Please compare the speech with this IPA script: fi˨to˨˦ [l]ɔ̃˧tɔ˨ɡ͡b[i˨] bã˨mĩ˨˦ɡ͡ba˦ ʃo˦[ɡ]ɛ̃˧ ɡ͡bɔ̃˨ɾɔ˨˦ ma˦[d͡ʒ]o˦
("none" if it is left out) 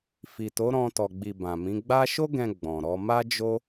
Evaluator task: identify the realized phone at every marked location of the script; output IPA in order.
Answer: ɾ, i˨, ɡ, d͡ʒ

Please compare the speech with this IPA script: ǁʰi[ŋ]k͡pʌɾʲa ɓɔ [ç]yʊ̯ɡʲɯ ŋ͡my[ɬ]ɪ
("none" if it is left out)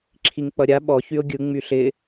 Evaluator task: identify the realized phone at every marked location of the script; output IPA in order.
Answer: ŋ, ç, ɬ

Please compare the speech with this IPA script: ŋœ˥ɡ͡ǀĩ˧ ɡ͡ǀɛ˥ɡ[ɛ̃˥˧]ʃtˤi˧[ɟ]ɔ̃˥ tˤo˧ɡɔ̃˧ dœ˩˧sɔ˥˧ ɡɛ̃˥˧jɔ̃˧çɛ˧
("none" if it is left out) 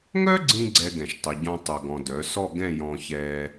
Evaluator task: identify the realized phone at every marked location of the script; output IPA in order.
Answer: ɛ̃˧˩, ɟ

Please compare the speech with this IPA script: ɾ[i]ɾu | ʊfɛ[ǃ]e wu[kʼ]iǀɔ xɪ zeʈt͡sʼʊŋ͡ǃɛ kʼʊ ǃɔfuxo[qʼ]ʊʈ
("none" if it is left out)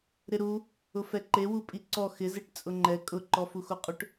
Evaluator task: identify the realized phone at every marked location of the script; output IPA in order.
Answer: ɪ, ǃ, pʼ, qʼ

